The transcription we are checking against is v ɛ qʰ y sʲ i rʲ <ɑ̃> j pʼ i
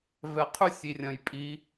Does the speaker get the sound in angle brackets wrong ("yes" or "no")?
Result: yes